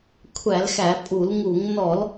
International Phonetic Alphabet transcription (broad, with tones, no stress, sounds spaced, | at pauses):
kʷʰ æ˧˩˧ l x æ˧˩˧ pʼ u˧˩˧ l ŋ u˧˩˧ ŋ n ɔ˧˩˧ l